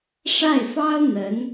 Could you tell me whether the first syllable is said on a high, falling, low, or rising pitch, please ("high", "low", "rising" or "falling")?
falling